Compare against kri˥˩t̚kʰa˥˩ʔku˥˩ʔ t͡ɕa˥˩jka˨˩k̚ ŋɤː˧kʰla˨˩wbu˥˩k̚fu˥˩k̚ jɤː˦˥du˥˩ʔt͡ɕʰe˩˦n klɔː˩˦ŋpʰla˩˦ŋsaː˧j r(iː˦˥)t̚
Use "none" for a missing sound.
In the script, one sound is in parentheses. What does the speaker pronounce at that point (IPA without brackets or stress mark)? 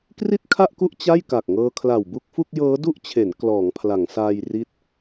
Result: i˦˥